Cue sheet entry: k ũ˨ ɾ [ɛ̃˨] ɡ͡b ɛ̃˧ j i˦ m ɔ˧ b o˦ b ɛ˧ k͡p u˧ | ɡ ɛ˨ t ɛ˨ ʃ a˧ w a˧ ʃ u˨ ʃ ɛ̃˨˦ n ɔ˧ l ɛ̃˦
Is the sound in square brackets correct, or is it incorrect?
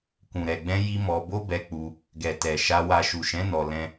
incorrect: ɛ˨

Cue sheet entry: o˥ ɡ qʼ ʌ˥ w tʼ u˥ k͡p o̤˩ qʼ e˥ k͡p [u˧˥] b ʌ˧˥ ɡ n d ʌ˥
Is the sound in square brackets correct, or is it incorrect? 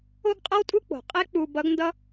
incorrect: u˧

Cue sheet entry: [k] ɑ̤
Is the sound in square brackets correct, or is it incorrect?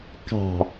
correct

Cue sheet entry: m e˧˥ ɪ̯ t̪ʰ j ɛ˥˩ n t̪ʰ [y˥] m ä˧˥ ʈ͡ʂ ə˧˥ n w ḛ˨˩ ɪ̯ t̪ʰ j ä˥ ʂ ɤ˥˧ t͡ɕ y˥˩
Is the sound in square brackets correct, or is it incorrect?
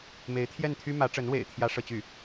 correct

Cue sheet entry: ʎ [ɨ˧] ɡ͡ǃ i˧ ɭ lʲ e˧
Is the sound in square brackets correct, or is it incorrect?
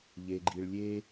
incorrect: e˧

